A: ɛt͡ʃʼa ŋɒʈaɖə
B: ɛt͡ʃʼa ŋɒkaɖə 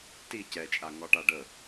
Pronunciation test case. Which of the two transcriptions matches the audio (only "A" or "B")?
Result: A